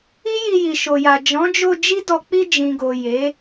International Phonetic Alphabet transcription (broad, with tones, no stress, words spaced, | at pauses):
i˦ji˧ ji˨ʃo˨ja˨ d͡ʒɔ̃˨˦d͡ʒo˧ d͡ʒi˦dɔ˧ k͡pi˧ d͡ʒĩ˨ɡo˨ je˨˦